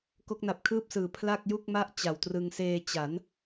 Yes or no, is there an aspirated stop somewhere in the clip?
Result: yes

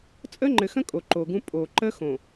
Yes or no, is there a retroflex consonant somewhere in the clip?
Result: no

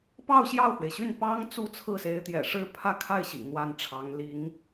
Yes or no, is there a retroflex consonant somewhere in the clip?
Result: yes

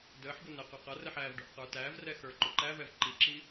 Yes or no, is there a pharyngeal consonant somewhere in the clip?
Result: yes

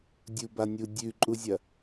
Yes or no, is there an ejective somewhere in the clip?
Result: yes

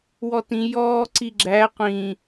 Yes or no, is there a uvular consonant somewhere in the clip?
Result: yes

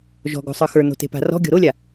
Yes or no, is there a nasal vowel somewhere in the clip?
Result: no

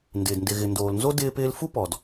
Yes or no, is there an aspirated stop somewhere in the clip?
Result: no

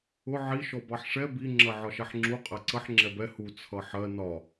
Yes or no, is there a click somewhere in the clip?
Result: yes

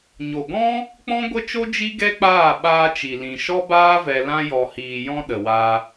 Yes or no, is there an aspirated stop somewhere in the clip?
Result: no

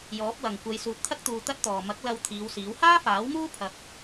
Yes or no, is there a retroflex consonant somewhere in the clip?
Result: no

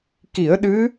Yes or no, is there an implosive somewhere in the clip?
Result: yes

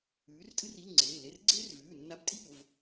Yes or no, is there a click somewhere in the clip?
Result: yes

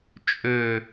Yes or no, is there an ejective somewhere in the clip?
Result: yes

